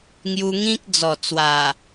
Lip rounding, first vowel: rounded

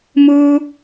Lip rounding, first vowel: rounded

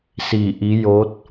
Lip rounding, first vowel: unrounded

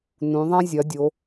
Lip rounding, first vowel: rounded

